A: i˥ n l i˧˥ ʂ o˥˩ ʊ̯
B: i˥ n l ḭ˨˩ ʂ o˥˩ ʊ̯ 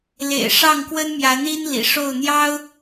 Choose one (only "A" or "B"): B